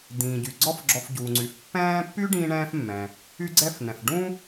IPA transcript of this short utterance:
d̪ ĩː˩ ɟ y˩ ɡ͡ǀ ɔ˦ f ɡ͡ǁ ɔ˨ f ɟ uː˩ ŋ͡ǀ y˩ f pː ɛ̃ː˥ pː y˦ ɖ ĩː˥ ɳ ɛ̃ː˥ f mː ɛ̃˩ | y˦ ɡ͡ǀ ɛ˦ f n ɛ̃˩ f ɖ ũ˥

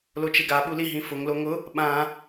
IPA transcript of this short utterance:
l o t͡ʃ e ɡ a ɓ u l i ɦ ĩ f ʊ ŋ l o ŋ ʊ | ɓ ã

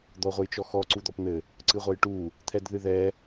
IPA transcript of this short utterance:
d̪ ɔ ʁʷ ɘ j t͡ʃ ɔ x ɔ ǀ u d̪ ɔ p n̪ ɘ | ǀ ɨ ʁʷ ɐ j ʈ u | t̪ʰ ɛ d ð ɨ ð ɛ

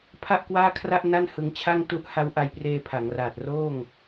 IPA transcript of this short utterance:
pʰ a˥˩ ʔ k w aː˥˩ kʰ r a˥˩ ʔ n a˥˩ n h ɯ˧ ŋ t͡ɕʰ a˥˩ ŋ t u˥˩ ʔ h a˦˥ w ʔ a˧ j p r eː˧ pʰ a˩˦ ŋ r aː˨˩ t̚ r oː˥˩ ŋ

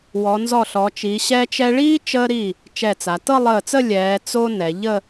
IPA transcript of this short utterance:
w ɔ˩˧ n z ɔ˧˩ ɬ ɔ˩˧ t͡ʃ iː˩˧ ɕ ɛ˧ t͡ʃ ɛ˧ ɭ iː˥ t͡ʃ əː˧ ɾ i˧˩ | t͡ʃ ɛ˧˩ t͡s a˩˧ t ɤ˥˧ lˠ əː˧˩ t͡s ə˥˧ lʲ ɛː˩˧ t͡s o˧ n ɛ˩˧ ʎ ə˥˧

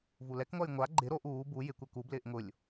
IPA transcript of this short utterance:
v u l ɛ k ŋʷ a j ŋʷ a ɡ͡ǃ ɪ ɾ o ʔ uː b u j ɪ kʷ ɛ k u b l ɪː ʔ ŋ ʊ lʲ

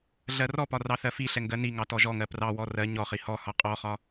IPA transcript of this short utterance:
ɮ ɜ r ɔ p ɒ r ɑ θ ɜ f i ɬ ɛ ŋ ɡ ɜ n i ŋ ɑ t ɔ ʒ ɔ ŋ ɜ p r ɑ w ɔ r ɜ ɲ ɔ χ i h ɔ h ɒ qʼ ɔ χ ɒ

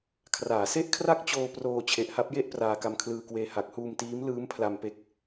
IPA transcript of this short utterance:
kʰ r aː˩˦ s e˥˩ ʔ kʰ r a˥˩ k̚ t͡ɕ oː˧ p r oː˧ t͡ɕʰ e˨˩ ʔ h a˦˥ p̚ j e˥˩ ʔ p r aː˧ k a˧ m kʰ l ɯː˧ k w eː˧ h a˨˩ k̚ h uː˧ m t iː˦˥ m l ɯː˦˥ m pʰ l a˧ m p e˦˥ k̚

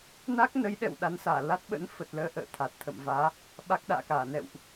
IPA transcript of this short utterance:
n a˦˥ k̚ n ə˨˦ j ɗ ɛ̰˧˨ w ɗ a˨˦ n s aː˧˩ l a˦˥ t̚ ɓ ə̰˧˥ n f ə˨˩ t̚ l əː˨˦ ʔ ə̰ː˧˨ t̪ʰ a˨˩ t̚ t̪ʰ ə̰˧˨ m v aː˨˦ | ɓ a˦˥ k̚ ɗ a̰ː˧˨ k aː˧˩ n ɛ̰˧˨ w ʔ

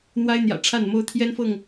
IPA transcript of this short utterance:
n̪ w a˦ ɪ̯ n̪ j ä̰˨˩ ʈ͡ʂʰ a˥˨ n m o˦ ʊ̯ t̪ʰ j ɛ˦ n f ɤ˥˨ ŋ

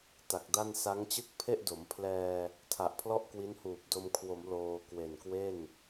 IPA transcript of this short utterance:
t a˨˩ k̚ d a˥˩ n s a˦˥ ŋ t͡ɕ ɯ˥˩ k̚ pʰ e˥˩ ʔ d o˩˦ m pʰ l ɛː˧ | tʰ a˨˩ ʔ pʰ l ɔ˥˩ ʔ k w i˦˥ n h uː˨˩ p̚ d o˧ m kʰ w o˩˦ m l oː˧ k w e˨˩ n k w e˥˩ n

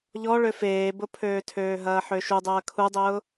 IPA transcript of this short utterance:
ʎ ɔ ɭ ø f eː b ʊ pʰ øː tʰ øː ɦ ɐː ħ ø ʃ u dˤ ɐː kʰ u dˤ ʊː

